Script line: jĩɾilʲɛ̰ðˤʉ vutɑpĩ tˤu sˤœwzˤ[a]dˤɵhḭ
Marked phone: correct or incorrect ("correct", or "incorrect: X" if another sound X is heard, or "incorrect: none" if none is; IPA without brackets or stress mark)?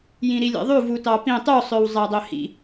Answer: incorrect: æ